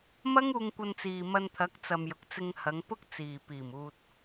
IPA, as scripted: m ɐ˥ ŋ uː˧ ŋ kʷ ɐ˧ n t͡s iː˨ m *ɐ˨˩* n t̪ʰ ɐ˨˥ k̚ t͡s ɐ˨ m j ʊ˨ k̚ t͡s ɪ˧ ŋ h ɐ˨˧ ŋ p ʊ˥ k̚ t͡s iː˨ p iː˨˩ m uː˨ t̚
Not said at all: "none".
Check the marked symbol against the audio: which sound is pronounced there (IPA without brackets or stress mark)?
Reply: ɐ˧